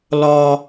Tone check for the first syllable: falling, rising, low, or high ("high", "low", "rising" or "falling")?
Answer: high